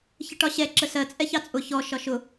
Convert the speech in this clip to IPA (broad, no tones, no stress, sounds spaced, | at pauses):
ç ə ʈ ɒ ɕ ɛ ǁ ə s ɜ t͡sʼ ɛ ç ɑ t͡sʼ ʊ ç ɔ ʃ ɒ ʃ ʊ